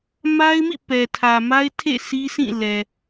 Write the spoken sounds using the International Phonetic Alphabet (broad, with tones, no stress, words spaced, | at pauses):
ma˦ɪ̯mḭ˦˨ pɛ˨tʰä˨ma˦ɪ̯ tʰḛ˦˨ si˦sĩ˦˨ lɛ˨